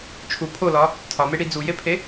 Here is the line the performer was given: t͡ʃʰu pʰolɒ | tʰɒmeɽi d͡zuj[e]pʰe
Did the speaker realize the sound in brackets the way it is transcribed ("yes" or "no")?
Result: yes